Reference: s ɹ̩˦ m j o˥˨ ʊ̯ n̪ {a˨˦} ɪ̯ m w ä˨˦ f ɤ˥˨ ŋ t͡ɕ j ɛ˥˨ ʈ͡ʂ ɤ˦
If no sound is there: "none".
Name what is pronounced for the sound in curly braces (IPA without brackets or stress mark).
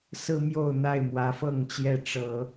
a˥˨